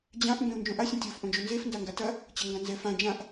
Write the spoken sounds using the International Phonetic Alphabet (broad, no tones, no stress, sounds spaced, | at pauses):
d͡ʑ ã ʔ m b ẽ u̯ n d͡ʒ õ ʔ a sʲ ɛ̃ tʲ o f ʔ õ d͡ʒ o n z e f n d a ŋ ɡ a t ɐ | t͡ɕ ɐ ŋ ɡ ã n z ɛ f ã d͡ʒ ã ʔ